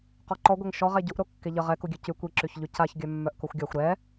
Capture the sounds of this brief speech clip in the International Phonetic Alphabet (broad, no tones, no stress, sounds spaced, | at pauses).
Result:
q ɔ ǃ ɔ ɡʷ ɛ ŋ ʃ ɔ ʁ ɛ ɟ u ʔ ɾ o kː e ʎ ə ʁ ɛ k u ɡʲ ø c y kʷ i ǁ y ç ʎ y c a ç ɡʲ œ mː œ ʔ k o xʷ ɡʲ a xʷ ɾ ɛ